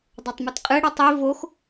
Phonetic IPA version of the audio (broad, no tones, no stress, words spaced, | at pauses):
dˤotˤmɯtqʼɨ ɽətˤi vox